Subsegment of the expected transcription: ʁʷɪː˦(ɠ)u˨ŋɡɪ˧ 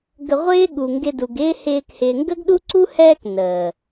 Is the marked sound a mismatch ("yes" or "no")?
no